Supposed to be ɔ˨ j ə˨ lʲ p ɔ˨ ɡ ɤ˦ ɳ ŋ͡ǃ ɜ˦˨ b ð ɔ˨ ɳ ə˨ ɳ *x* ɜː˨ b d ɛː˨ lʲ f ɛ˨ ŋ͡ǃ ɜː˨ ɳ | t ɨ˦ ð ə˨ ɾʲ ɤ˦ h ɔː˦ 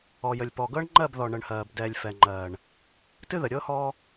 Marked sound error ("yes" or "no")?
yes